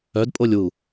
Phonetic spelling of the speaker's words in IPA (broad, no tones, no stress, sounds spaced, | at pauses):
œ d pʼ o lʲ w u